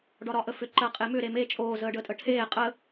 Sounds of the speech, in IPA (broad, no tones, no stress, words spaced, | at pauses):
ɖɒɾɒʔəfʏ ǃɜqʼemʏ ɾeme t͡ʃʼoː zəːɖəːtʼəʈʰeː qʼə